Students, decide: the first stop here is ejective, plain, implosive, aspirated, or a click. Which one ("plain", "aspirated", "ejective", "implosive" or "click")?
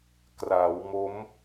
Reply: plain